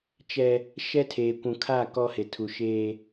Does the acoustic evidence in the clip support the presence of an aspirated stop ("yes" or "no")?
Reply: yes